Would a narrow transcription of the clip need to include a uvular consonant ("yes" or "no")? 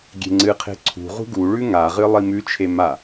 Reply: yes